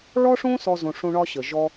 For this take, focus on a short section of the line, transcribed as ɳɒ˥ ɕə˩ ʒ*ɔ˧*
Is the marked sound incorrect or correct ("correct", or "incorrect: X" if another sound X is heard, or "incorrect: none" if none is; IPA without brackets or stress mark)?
correct